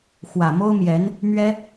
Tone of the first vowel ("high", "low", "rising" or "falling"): low